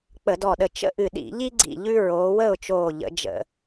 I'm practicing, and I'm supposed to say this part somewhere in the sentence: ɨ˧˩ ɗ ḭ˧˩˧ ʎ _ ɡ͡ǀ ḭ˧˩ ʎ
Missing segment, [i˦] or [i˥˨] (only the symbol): i˦